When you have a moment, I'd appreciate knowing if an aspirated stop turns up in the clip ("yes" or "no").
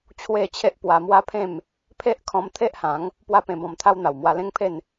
yes